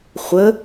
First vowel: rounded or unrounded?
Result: unrounded